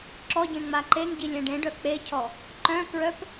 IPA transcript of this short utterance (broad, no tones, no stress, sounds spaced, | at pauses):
ǁ ɔ ɟ ẽ ŋ͡m a ǃ e ŋ ɟ i lʲ ɛ̃ ɖ ẽ ɖ œ k͡p e cʰ ɔ | ǃ œ̃ k ɹ œ p